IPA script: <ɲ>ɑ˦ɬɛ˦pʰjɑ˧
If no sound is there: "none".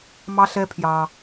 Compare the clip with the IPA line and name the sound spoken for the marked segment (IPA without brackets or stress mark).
m